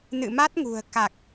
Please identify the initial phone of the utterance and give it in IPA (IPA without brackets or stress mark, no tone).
n